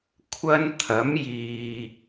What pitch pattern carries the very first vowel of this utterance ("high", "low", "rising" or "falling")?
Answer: high